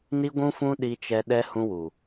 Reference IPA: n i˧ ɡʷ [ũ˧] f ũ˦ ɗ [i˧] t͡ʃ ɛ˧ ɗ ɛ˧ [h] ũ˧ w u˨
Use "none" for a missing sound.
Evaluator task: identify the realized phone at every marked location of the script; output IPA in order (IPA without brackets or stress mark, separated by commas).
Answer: ũ˧, i˧, h